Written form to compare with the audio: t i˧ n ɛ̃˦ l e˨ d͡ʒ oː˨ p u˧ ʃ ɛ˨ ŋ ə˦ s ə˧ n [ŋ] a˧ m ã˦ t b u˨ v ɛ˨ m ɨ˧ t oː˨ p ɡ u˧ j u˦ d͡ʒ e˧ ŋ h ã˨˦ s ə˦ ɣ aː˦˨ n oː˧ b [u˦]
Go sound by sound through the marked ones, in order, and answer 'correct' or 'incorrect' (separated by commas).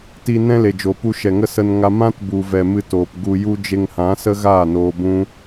correct, incorrect